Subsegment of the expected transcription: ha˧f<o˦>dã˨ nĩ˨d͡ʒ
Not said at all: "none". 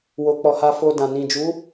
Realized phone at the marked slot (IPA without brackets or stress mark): o˧